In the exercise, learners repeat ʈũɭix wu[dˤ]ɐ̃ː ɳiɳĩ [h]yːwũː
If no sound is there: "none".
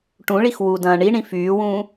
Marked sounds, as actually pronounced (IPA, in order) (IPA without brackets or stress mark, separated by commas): d, f